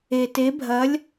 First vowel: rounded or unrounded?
unrounded